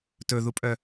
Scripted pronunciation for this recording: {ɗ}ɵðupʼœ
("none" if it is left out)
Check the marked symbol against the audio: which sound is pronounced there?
t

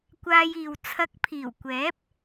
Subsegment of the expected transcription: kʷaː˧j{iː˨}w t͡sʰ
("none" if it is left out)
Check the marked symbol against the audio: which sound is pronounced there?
iː˨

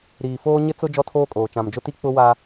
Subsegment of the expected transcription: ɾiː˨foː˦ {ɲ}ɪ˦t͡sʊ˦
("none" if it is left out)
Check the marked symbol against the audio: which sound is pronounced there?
ɲ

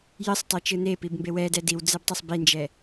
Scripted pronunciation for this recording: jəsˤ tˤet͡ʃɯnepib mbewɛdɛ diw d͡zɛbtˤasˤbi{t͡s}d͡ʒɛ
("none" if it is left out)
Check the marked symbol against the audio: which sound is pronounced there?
n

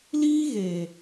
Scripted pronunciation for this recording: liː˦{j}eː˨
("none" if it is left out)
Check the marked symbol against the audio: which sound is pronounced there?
ɣ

